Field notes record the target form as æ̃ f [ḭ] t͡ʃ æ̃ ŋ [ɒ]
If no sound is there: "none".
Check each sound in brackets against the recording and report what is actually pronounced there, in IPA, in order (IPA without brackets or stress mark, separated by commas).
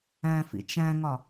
ḭ, ɒ